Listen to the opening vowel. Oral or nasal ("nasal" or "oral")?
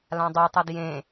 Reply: nasal